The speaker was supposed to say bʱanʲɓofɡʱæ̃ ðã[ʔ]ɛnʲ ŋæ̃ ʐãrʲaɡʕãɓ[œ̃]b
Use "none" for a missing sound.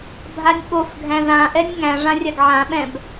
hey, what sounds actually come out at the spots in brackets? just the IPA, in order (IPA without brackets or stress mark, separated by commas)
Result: ʔ, ɛ̃